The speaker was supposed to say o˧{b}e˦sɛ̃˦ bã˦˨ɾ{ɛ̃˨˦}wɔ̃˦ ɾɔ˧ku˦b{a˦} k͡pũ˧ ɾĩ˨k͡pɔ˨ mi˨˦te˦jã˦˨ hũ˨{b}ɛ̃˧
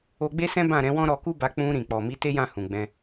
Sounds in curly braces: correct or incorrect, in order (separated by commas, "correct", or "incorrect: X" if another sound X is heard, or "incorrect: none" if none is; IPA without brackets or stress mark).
incorrect: ɡ͡b, correct, incorrect: a˧, incorrect: ɡ͡b